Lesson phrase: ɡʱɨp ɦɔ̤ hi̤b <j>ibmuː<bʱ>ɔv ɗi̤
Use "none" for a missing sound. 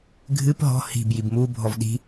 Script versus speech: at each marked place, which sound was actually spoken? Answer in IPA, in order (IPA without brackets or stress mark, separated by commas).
j, bʱ